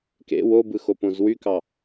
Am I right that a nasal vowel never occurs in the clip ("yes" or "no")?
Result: no